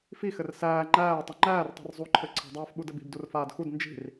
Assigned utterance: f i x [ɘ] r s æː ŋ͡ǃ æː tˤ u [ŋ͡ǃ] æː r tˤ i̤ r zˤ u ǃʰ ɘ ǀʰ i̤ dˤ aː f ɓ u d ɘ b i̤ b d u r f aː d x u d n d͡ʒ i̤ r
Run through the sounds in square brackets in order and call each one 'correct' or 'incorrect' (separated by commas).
correct, correct